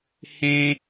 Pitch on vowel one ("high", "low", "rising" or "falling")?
high